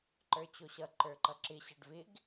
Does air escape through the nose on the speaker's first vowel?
no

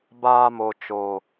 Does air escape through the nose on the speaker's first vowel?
no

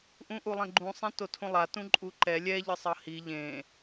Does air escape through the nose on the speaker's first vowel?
yes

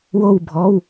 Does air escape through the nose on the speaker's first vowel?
no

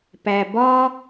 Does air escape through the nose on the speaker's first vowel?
no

